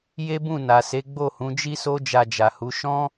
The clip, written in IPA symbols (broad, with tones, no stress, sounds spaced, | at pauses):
j e˦ b ũ˦˨ n a˨ s e˨˦ ɡ͡b o˦˨ h ũ˨˦ d͡ʒ i˦ s o˦ d͡ʒ a˧ d͡ʒ a˨ h u˨˦ ʃ ɔ̃˦